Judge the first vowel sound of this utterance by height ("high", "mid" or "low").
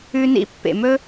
high